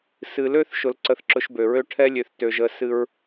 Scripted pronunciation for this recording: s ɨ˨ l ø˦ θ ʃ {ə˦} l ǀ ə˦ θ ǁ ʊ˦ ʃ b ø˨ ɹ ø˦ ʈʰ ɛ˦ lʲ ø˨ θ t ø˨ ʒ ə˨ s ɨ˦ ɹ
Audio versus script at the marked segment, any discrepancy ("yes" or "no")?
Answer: yes